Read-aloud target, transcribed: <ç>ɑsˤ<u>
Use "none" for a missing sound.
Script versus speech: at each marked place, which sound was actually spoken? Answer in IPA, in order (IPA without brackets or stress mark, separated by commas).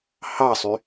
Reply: h, y